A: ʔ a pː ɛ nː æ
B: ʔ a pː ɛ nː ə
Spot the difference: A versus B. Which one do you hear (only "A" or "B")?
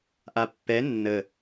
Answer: B